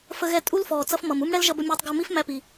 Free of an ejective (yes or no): no